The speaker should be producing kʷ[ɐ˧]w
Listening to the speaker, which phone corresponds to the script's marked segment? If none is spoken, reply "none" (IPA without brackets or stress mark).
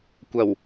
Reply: ɐ˨˩